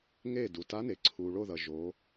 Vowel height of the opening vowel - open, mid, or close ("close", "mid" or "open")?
mid